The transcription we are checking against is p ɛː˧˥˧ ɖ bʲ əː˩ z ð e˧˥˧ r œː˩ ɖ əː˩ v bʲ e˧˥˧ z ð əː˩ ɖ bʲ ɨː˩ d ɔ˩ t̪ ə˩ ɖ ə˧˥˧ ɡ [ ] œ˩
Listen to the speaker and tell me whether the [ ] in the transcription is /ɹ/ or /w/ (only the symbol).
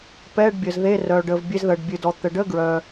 ɹ